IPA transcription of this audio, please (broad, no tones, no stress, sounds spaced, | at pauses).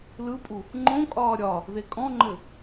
l ɯ pʼ u | ŋ͡ǃ õ kʼ ɒː ɾʲ ɒ | ð e kʼ ɔ̃ ŋ͡ǃ ɘ